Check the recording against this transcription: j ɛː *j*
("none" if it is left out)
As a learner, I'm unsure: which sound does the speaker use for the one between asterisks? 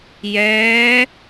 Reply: none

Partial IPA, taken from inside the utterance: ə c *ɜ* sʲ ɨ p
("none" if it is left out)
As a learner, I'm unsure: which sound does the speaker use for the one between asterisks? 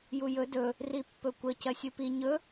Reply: ɜ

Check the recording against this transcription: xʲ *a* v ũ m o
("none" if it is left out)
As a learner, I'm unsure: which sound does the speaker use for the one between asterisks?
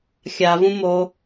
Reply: a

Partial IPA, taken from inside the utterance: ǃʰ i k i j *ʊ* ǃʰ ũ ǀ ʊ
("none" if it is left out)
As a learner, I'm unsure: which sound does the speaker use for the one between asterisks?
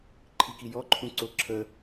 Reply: ɔ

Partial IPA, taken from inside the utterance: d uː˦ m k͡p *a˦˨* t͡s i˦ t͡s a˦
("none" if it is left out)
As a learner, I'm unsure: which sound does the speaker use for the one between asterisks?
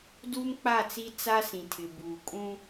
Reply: a˦˨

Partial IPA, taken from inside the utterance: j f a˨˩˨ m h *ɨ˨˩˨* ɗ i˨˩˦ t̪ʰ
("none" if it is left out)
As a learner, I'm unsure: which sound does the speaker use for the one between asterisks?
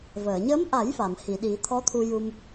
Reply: i˨˩˨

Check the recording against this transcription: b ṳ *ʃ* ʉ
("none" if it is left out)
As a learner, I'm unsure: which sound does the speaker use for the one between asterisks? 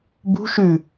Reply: ʃ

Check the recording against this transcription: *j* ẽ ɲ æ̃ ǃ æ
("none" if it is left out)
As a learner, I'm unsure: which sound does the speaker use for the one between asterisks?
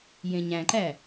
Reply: j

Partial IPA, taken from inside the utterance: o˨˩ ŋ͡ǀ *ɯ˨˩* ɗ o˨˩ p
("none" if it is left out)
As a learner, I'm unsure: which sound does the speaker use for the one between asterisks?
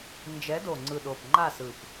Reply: ɯ˨˩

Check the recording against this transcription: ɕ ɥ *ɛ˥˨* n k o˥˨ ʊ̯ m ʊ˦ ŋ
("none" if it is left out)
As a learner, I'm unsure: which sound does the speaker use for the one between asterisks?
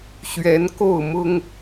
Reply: ɛ˨˦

